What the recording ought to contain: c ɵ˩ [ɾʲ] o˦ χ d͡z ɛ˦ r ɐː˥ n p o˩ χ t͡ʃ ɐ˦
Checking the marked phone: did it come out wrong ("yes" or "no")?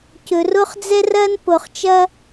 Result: yes